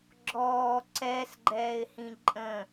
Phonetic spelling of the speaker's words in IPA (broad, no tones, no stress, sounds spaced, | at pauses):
ɡ͡ǁ ɔː ǀ ɛ s ɡ͡ǃ ɛː ɪ̯ h ĩ ǃʼ ə̃